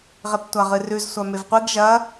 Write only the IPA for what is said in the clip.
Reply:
ʁ e p tʷ a ʁ ɨ r ʉ z sʷ a m e v qʷ i ɡ ʒ ɐ

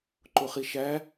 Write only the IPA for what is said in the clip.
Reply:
ǃ ʊ χ i ʃ æ

